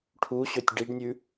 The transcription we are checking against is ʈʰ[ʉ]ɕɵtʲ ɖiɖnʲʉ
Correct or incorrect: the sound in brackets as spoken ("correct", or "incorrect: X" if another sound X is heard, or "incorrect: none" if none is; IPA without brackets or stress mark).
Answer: incorrect: u